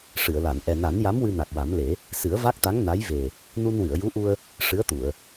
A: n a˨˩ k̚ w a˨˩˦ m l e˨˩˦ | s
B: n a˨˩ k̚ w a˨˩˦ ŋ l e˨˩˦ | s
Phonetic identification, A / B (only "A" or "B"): A